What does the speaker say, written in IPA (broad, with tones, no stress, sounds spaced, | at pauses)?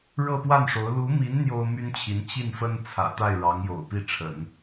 ɻ ɤ˥˧ p w a˥˩ n ʂ o˧˥ ʊ̯ l u˧˥ m i˧˥ n n̪ j o˥ ʊ̯ m y˥ n t͡ɕʰ i˧˥ n t͡ɕ i˥˩ n f ə˥ n t͡sʰ ä̰˨˩ t̪ a˥˩ ɪ̯ ɻ ɑ˧˥ ŋ j o̰˨˩ ʊ̯ p i˥˩ ʈ͡ʂʰ ə̰˨˩˦ n